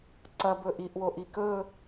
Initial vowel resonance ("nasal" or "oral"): oral